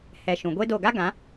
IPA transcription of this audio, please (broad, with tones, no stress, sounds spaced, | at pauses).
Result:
h ɛ˨ ʃ ũ˨ ɡʷ e˦ d o˦˨ ɡ a˦ ɡ ã˨˦